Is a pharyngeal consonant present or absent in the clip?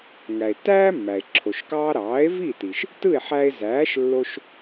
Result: present